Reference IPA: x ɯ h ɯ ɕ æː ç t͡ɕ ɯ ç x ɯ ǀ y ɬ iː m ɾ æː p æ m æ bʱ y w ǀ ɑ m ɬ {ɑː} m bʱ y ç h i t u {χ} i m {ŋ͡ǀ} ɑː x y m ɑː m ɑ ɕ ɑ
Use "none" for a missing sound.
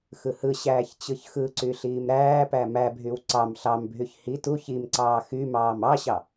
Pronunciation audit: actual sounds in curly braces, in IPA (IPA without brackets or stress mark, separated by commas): ɑ, ç, ǀ